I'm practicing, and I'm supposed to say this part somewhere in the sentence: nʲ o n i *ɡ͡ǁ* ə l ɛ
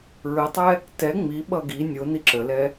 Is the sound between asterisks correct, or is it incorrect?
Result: incorrect